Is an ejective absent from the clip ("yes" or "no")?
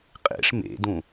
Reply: no